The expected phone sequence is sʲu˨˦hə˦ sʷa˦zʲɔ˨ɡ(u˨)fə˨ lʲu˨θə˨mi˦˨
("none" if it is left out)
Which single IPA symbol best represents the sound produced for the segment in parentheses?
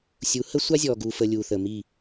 u˨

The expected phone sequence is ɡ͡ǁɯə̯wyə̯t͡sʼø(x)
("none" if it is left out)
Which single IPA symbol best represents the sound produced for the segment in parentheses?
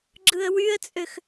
x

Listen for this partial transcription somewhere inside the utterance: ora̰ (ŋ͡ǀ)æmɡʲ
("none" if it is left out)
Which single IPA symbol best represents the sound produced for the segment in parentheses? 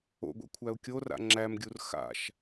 ŋ͡ǁ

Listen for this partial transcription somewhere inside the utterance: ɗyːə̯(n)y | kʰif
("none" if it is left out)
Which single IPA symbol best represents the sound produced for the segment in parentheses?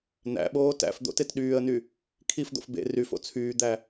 n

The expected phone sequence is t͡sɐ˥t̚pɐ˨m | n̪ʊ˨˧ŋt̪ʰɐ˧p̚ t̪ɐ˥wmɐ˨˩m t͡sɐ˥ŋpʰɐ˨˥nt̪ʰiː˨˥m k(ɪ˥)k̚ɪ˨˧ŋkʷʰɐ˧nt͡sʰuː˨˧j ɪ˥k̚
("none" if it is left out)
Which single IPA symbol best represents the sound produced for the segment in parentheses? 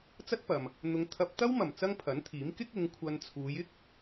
ɪ˥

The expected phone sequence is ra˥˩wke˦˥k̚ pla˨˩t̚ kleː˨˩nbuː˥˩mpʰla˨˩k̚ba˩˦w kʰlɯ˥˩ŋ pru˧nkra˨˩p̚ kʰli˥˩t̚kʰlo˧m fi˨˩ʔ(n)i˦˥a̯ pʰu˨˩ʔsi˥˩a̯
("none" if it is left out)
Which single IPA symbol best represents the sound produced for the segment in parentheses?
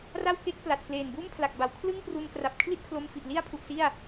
l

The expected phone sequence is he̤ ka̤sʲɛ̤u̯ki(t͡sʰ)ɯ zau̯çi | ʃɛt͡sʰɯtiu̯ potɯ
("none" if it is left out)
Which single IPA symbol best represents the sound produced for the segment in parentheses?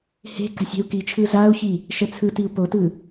t͡ʃʰ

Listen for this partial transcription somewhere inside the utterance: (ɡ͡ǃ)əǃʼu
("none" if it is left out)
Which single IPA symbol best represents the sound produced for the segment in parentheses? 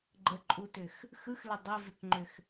ɡ͡ǃ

